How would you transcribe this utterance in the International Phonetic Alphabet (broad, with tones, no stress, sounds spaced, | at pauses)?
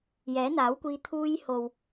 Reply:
j ɛː˨˥ n̪ aː˨˥ w kʷ iː˧ t̪ʰ uː˧ j h o˨ w